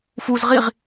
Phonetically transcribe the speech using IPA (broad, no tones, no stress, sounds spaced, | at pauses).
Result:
f u z ʁ i ʁ